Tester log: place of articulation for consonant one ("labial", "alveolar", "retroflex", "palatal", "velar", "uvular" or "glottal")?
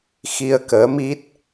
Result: velar